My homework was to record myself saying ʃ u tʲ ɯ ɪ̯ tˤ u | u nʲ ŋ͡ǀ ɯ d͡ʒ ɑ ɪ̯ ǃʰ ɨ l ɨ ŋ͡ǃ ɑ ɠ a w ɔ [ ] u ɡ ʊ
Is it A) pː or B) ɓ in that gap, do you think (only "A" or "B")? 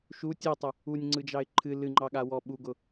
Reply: B